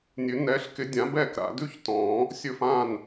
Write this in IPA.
nʲʉ˨˩˦nɛ˨˥ɬ kɪ˨˥dʲã˨˥bɛː˥˩k ɾa̰˨˩˦ dʉ˥˧çtɔ̃ː˨˩˦ | sʲɵ˥˩fãː˥˩n

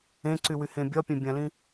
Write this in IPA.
ẽǀywyhẽ bʲɒpʲẽbʲãlĩ

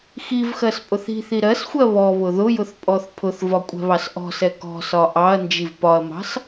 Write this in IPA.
xivxɜs pʼʊθi̤θi ɾɜsxʷɜ βɔ βʊðʊjʊθ pʼɔθpʰʊθvɒ kʷʼɛ̤βɑsʔɔ̤sɛ kɔ̤sɒ ʔɑɐ̯nd͡ʒiv pɒɐ̯mɑ̤s

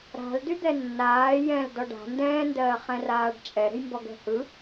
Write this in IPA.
ɾa̤l dyd̪ɛnːaː jɛ̃l dɔɖa̤ ndɛ̃ː ndɜːχɛ̃raːɖt͡ʃʼɛ ɾə̤jmbɔɡɛ̤hɯ

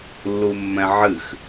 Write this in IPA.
lːumːɛ̃ʕɨx

